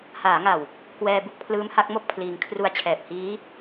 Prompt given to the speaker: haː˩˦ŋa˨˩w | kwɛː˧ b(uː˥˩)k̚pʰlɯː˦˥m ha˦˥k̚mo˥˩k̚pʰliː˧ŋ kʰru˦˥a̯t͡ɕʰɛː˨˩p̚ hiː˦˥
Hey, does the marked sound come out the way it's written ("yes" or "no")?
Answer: no